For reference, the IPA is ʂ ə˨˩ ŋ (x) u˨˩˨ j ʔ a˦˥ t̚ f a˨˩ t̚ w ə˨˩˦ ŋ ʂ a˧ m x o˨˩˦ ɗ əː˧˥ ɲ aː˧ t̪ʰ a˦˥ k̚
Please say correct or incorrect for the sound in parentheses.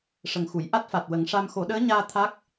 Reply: correct